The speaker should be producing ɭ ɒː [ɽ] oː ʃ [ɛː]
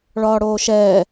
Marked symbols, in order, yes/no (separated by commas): yes, yes